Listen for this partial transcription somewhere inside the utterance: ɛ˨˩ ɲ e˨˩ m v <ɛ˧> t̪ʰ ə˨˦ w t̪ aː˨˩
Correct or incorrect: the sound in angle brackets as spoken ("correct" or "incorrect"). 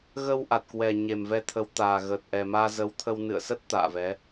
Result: correct